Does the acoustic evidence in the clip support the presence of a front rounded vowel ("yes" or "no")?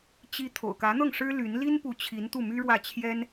yes